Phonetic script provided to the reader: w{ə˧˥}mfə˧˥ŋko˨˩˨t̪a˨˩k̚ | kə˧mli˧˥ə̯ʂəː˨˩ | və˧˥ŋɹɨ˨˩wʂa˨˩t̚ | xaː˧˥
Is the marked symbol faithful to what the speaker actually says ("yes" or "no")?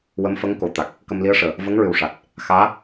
yes